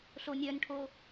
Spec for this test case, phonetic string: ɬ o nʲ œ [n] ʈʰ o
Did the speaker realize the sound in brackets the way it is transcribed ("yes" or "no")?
yes